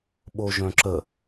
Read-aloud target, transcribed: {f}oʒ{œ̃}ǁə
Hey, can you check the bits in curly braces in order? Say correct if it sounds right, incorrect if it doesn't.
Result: incorrect: ɓ, correct

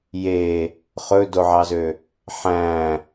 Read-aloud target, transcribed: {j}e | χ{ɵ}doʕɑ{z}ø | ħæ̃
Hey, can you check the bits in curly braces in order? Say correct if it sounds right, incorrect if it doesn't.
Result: correct, correct, correct

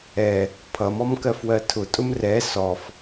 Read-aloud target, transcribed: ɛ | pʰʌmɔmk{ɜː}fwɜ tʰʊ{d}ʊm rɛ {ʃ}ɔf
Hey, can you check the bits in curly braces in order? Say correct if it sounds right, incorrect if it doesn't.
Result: incorrect: ɜ, incorrect: tʼ, incorrect: s

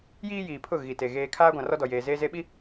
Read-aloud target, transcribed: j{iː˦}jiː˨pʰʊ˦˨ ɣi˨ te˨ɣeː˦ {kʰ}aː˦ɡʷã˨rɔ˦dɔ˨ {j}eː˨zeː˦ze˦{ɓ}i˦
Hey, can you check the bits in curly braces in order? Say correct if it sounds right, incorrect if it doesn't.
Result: correct, correct, correct, correct

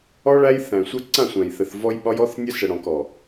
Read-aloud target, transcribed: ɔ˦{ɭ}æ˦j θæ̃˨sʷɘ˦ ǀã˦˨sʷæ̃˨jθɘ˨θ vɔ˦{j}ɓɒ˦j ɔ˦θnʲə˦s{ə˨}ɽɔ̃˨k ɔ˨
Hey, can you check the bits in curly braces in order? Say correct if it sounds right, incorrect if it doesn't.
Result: correct, correct, correct

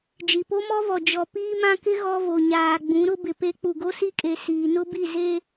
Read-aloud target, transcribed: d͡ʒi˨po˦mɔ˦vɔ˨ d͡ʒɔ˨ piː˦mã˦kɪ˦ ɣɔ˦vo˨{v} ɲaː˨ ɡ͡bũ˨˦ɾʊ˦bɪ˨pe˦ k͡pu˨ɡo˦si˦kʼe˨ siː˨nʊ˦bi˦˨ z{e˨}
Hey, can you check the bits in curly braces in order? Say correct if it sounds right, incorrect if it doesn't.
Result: incorrect: none, incorrect: e˦

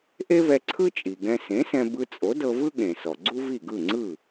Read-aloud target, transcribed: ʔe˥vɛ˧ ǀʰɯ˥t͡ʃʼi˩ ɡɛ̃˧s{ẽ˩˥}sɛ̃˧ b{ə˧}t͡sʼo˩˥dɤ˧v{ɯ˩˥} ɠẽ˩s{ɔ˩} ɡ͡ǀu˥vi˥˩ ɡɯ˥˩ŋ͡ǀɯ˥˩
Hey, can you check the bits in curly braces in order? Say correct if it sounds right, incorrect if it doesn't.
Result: correct, incorrect: ɯ˧, incorrect: ɯ˥, correct

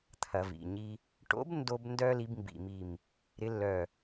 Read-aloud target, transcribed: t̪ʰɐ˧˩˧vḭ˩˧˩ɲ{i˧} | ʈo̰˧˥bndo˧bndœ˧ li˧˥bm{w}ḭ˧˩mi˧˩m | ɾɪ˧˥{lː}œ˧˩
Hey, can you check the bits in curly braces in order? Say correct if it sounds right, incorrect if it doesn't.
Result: correct, incorrect: b, correct

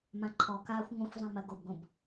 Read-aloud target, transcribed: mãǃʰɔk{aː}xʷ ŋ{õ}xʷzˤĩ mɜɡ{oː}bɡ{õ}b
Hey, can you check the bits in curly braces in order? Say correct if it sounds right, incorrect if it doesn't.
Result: correct, correct, incorrect: o, correct

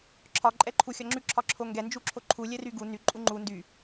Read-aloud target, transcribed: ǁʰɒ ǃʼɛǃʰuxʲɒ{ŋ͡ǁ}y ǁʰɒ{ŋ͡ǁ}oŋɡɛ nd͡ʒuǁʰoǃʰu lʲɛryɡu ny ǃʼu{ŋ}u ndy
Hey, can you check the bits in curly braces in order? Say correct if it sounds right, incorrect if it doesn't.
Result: correct, incorrect: ǁʰ, incorrect: ŋ͡ǃ

